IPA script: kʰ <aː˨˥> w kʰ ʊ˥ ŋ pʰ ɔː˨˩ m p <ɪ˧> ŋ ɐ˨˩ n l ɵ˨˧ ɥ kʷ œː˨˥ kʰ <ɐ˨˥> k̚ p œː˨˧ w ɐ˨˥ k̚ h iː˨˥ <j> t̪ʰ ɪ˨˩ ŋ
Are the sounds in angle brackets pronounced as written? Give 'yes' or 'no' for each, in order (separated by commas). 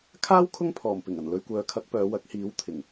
no, no, yes, no